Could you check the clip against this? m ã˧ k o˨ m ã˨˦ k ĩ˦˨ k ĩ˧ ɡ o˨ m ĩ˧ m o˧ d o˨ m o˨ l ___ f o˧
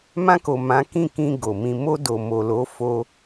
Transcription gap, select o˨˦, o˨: o˨˦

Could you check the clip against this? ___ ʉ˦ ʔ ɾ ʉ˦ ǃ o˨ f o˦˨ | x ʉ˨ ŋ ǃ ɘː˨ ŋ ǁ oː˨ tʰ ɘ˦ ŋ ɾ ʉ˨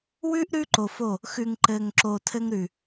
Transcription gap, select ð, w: w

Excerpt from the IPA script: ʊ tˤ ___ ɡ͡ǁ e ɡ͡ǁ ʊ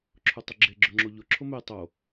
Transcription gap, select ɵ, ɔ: ɵ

